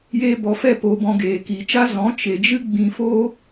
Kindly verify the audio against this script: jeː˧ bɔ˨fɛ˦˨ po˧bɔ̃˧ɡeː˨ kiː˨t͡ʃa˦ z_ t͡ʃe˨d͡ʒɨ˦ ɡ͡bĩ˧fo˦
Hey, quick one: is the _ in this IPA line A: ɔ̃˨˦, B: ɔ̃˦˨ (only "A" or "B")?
A